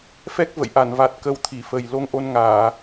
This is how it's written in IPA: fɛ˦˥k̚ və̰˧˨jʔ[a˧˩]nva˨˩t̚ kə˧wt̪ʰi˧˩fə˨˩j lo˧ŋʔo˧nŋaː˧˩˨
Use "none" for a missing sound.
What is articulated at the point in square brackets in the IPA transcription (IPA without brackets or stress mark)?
a˧˩